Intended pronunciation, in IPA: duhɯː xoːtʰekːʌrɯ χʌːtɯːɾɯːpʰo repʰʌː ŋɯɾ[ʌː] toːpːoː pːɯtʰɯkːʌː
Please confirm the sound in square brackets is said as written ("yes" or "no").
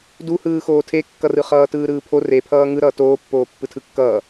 yes